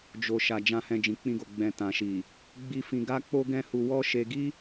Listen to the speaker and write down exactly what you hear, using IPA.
d͡ʒ o˨ ʃ a˨ d͡ʒ ã˨ h ɛ̃˨ d͡ʒ ĩ˨ k͡p ĩ˧ ɡ o˨ ɡ͡b ɛ̃˨ t ã˨ ʃ i˨ | ɡ͡b i˧ f ĩ˧ ɡ a˦ k͡p o˦ ɡ ɛ̃˦ h u˧ w ɔ˦ ʃ e˧ ɡ i˦

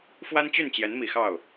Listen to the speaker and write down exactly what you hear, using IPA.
f w a˥ n t͡ɕ y˥˩ n t͡ɕ j ɛ˧˥ n m i˨˩ x ɑ˥˩ ʊ̯

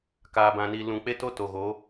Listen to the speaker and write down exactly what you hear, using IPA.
k aː˨ b ã˨ n i˨ l ũ˨ k͡p e˦ t o˦ t o˨ ɣ o˨˦

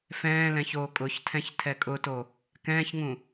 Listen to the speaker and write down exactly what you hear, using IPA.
f ɛ̃ː l ɛ̃ ç oː kʼ ʊ ç tʰ ɛ̃ ç tʰ ɛ kʼ ʊ t o | k ɛ̃ː ç ŋ ũ

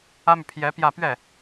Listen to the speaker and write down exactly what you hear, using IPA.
ä˥ m y˨ pʰ j ɛ˧˥ p j ä˥˧ p ɥ ɛ˥˩

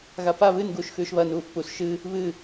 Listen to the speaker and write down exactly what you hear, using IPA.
ɣ a p a β ɨ n ɡ uː ʃ x ʉː ʃ β ɐ n uː f p u s ʃ ɨ | β ɨ

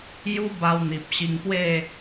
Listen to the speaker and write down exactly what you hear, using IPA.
j u˦ b a˧ w n̪ i˨ p̚ ɕ i˧ ŋ p w e˥˧

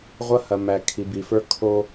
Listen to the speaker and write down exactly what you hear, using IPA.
ʁʷ ɐ˦ h ɐ˨ m æ˨ kʰ i˨ b i˨ f ə˞˦ kʰ o˦

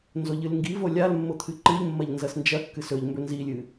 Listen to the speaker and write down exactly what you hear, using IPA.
n z o ʎ ɨ l ŋ ɡ i v o lʲ a l mː o t̪ʰ ɨ ǃ ɨ ʎ mː ɐ ʎ n z ɐ s n d͡ʒ ɐ kː ɨ s ɵ ʎ m b ɵ n z i lʲ ɨ

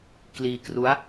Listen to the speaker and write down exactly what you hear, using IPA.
k l iː˧ k r u˦˥ a̯

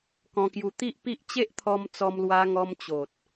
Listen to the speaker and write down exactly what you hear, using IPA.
k ɔ̃˧ k j u˧ t̪ i˦ ʔ p i˦ ʔ t͡ɕ e˦ ʔ t̪ʰ ɔ˧ m t͡s ɔ˧ m l w a˧ ŋ ɔ˧ m t͡ɕ o˨ t̚

